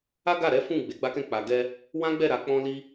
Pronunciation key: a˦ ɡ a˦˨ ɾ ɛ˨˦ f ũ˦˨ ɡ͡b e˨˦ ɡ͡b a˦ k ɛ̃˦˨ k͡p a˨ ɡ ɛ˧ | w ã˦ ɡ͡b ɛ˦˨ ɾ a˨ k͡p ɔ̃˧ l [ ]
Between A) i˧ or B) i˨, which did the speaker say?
A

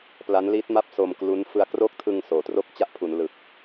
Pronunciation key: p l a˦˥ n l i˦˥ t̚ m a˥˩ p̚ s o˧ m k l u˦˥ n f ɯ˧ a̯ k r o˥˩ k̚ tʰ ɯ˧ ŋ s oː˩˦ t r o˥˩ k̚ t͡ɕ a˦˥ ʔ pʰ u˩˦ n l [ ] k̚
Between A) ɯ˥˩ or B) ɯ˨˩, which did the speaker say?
B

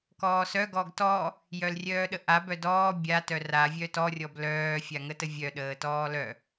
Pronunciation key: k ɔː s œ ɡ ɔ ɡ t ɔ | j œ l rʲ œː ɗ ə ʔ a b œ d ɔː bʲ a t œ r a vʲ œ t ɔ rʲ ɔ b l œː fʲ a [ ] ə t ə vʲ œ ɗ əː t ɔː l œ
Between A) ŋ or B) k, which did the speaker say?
A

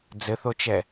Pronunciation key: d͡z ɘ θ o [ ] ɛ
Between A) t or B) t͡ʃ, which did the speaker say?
B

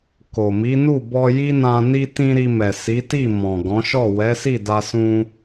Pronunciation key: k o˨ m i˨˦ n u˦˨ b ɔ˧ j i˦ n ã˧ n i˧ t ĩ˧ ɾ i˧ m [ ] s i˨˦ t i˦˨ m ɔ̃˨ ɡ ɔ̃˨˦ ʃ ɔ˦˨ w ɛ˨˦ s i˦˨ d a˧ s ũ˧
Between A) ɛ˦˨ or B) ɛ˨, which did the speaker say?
B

